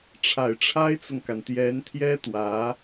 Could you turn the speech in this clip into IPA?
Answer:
ʈ͡ʂʰ a˨˩ ɪ̯ ʈ͡ʂʰ a˥ ɪ̯ t͡s ʊ˨ ŋ k a˩ n t̪ j ɛ˧˥ n t̪ʰ j ɛ˥ t̪ w ä˧˥

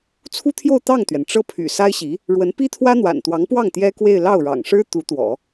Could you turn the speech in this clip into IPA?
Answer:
t͡sʰ u˥ t̪ʰ j o˥˧ ʊ̯ t̪ ɑ˥˩ ŋ t̪ ɥ ɛ˩ n ʈ͡ʂ ɤ˥˩ pʰ y̰˨˩ s a˥ ɪ̯ ɕ i˧˥ | ɻ w ə˧˥ n p i˥ t̪ʰ w ä˥ n̪ w a̰˨˩ n t̪ w ɑ˧˥ ŋ p w ɑ˥˩ ŋ t̪ j ɛ˥ k w e˥˧ ɪ̯ l ɑ˥˩ ʊ̯ ɻ ɑ̰˨˩ ŋ ʂ ɻ̩˥ t̪ u˧˥ t̪ w ɔ̰˨˩˦

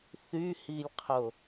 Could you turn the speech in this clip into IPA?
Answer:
θ y h i lʲ qʰ o

